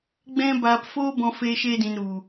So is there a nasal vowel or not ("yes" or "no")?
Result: yes